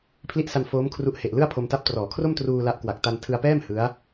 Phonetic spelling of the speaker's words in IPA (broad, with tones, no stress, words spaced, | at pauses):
pʰli˦˥ʔsa˧n foː˦˥mkʰru˦˥ʔhe˨˩ʔ lɯ˥˩a̯pʰo˧mta˦˥p̚trɔː˩˦ kʰro˥˩mtruː˧ la˦˥ʔkwa˨˩k̚ ta˧ntʰɯ˧a̯pɛː˥˩m hɯ˦˥a̯